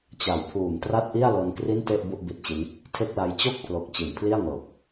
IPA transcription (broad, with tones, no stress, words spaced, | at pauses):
t͡ɕa˨˩wpʰuː˨˩m tra˥˩t̚ʔi˥˩a̯lo˧n kri˥˩nte˥˩ʔ bu˥˩ʔbi˦˥t̚t͡ɕi˦˥n | tʰe˥˩k̚la˧j t͡ɕo˥˩k̚pʰlo˨˩k̚ t͡ɕi˩˦npʰli˥˩a̯ŋɤː˨˩p̚